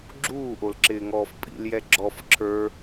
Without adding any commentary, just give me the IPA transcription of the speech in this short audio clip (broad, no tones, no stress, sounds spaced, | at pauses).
ɡ͡ǁ uː ʔ o l ǁ ɪː ŋ ɔː f pʼ ḭ l j ɛ ɡ͡ǁ ɔ f ǁʰ ə˞